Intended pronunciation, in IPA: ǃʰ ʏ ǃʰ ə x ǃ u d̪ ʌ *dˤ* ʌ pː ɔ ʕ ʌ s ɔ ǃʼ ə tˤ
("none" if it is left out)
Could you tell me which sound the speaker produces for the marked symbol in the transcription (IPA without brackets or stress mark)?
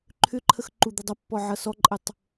dˤ